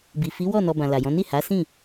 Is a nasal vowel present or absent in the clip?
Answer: present